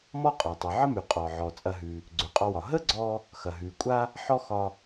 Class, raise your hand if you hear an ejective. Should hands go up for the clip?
yes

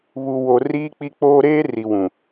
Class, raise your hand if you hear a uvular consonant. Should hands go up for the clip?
no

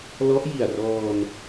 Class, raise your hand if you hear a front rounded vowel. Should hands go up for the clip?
no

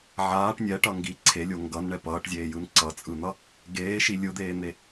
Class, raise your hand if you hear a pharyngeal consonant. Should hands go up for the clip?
yes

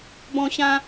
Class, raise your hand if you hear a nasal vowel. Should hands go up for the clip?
yes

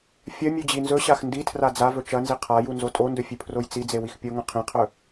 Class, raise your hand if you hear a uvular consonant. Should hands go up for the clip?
yes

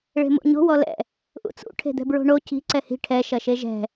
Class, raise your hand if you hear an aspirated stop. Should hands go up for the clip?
yes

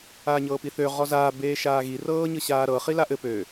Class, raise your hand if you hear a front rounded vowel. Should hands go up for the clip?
yes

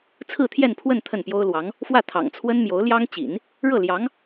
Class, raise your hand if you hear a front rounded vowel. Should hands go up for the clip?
no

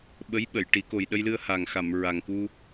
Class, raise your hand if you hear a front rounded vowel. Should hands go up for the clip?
no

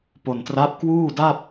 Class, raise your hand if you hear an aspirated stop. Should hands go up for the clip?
no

